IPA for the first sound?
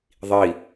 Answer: ðˤ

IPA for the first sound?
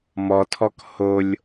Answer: m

